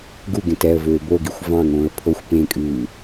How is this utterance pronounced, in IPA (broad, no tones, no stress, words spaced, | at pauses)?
ɡuɡẽt ɛə̯ vøːboɡixʷ vɑ̃ŋõːə̯ pʰoxʷ pẽkʼʉː